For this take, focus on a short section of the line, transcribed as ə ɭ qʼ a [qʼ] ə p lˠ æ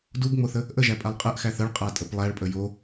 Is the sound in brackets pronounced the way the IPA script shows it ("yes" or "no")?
no